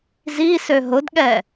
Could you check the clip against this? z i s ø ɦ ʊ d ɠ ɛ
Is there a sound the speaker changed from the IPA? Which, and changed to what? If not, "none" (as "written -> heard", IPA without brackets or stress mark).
none